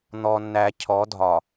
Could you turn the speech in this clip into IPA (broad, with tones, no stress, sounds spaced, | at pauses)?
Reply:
n̪ ɔ˨ nː æ˨ cʰ ɔ˨˦ dʱ ɒ˨